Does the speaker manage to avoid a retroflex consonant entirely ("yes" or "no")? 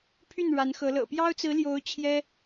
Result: no